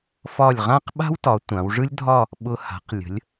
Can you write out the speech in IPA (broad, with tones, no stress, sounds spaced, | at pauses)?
f ɒ˧˩ lʲ ʁ ã˥˧ q ɓ a̤˥ w t ɒ˩˧ tʷ ã˩˧ w ʐ ɯ˥ lʲ dʱ ɒ˥˧ | ɓ ʊ˧ h a̤˩˧ q lʲ ə̤˩˧ lʲ